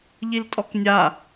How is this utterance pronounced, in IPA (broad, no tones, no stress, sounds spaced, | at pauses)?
ʎ i l tʼ ɔ k nʲ a